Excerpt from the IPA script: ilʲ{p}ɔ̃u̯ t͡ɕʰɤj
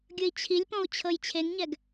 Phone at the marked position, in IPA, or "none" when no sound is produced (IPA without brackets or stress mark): p